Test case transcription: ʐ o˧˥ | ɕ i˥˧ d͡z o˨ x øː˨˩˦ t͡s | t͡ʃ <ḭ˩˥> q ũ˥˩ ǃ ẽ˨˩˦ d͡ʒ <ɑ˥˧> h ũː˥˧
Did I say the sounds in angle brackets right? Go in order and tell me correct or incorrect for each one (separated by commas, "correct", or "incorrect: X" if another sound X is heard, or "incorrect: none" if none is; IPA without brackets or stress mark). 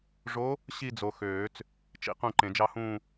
correct, correct